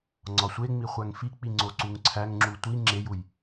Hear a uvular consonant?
yes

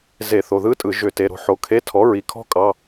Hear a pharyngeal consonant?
yes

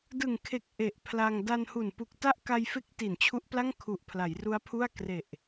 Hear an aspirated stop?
yes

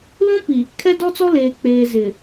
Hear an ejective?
no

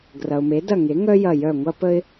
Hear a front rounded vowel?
yes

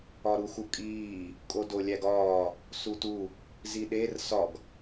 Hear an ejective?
yes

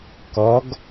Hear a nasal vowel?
no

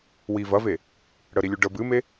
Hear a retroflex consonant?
yes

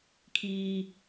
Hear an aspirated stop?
yes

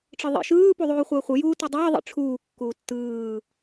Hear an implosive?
no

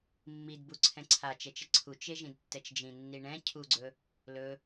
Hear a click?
yes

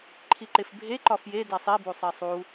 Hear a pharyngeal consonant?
no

